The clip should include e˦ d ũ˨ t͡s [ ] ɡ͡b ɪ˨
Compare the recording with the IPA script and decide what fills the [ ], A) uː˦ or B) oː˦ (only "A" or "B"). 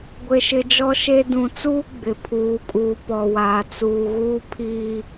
A